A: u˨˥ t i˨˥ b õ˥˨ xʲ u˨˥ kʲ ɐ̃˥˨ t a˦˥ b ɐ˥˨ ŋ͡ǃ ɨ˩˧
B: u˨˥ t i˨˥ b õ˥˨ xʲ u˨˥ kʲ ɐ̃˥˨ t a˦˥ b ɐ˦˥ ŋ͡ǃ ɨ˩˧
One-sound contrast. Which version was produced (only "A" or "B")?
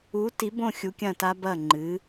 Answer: A